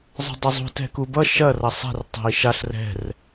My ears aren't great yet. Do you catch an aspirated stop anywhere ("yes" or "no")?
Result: no